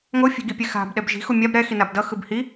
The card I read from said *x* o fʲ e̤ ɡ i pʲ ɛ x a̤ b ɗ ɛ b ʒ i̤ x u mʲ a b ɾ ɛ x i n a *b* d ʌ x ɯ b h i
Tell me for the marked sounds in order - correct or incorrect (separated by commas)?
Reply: incorrect, correct